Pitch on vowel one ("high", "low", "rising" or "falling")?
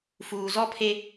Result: low